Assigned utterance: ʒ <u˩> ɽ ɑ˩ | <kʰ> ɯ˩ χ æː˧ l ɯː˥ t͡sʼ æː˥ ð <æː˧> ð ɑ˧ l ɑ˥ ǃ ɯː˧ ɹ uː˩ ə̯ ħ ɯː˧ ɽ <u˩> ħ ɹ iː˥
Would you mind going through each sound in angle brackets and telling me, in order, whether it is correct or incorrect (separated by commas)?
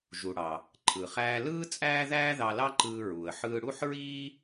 correct, incorrect, incorrect, incorrect